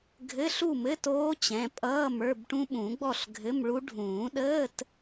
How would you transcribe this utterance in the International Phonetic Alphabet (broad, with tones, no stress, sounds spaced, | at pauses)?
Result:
ɡʱ ɘ˧˥˧ ɬ u˥˨ m ɘ˧˥˧ t oː˦˥ t͡ɕ ɛ̃˩˧˩ pʼ ʌː˧˥˧ m ə˞˧˥˧ b ʈ ũ˦˥ ɓ ũ˨˩˦ ɡ͡b ɔ˥˨ ɬ ɡʱ ɘ˧˥˧ m ɭ u˦˥ ɖʱ ũː˨˩˦ ɗ əː˧˥˧ t